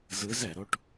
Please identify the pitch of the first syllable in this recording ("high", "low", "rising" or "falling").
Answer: rising